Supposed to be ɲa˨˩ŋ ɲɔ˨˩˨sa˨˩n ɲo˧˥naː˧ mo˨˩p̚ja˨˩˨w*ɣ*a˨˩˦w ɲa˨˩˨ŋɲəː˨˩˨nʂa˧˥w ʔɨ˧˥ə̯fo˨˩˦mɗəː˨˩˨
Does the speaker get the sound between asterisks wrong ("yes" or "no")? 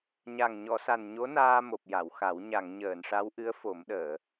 yes